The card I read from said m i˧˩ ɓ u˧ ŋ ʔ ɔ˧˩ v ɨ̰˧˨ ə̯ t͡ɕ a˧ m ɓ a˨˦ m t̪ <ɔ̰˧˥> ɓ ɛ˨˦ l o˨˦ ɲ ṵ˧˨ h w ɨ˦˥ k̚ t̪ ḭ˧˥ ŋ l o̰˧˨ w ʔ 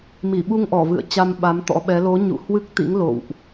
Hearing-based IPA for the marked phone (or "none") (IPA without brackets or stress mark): ɔ̰˧˥